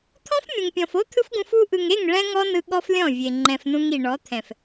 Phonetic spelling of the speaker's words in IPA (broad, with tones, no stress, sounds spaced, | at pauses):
t̪ʰ ɔ̃˦ f mʲ ũ˨ ŋ pʲ ɔ̃˨ f o˦ t̪ʰ ɯ˦ f ɡ ũ˧ f u˧ ʔ ɯ˨ ŋ e˦˨ ŋ ɭ ɛ̃˦ ŋ ɔ˦ n ɯ˧ ɠ ɔ˦ f lʲ ɔ̃˦˨ vʲ e˨ ŋ͡ǃ ɛ̃˨ f n ũ˧ ŋ i˨ ɳ ɔ˨˦ t̪ʰ ɛ̃˨ f